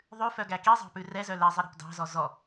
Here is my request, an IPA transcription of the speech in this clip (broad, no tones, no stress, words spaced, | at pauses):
ðˤʉfœɡæ kizˤɑ̤pʉ rɛzœ lɛzˤiɾɑ̤p dɑ̤zɔ zɔ